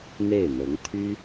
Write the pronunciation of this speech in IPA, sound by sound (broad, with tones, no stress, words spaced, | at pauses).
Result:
n̪e˥˩ɪ̯n̪ɤ˧˥ŋ t̪ʰy˥